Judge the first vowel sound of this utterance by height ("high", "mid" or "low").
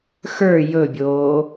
mid